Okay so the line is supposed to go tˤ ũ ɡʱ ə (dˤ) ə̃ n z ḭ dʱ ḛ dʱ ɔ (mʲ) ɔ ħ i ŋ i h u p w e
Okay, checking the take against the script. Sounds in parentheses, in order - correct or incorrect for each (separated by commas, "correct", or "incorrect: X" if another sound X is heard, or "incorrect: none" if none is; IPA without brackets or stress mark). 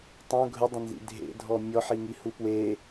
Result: correct, correct